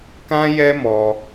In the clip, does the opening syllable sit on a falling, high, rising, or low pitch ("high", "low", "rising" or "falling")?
high